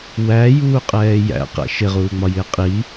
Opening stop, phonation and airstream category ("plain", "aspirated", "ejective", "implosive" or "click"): ejective